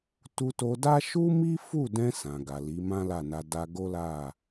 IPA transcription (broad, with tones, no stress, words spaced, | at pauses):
tu˧to˧da˦ ʃu˦mi˦fu˦˨dɛ̃˧ sã˨ɡa˨li˨˦ mã˦la˦˨na˧ da˧ɡo˦la˦˨